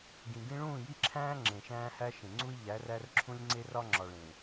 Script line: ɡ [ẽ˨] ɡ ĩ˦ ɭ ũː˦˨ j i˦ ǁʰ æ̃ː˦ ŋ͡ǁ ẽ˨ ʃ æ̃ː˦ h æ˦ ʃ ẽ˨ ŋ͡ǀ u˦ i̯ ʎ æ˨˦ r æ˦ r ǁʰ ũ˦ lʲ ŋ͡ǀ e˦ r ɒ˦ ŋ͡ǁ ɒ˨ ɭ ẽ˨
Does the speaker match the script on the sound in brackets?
no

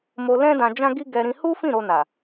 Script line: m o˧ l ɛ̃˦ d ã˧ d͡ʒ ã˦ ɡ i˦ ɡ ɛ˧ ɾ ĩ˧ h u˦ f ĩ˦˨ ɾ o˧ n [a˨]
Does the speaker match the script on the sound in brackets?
yes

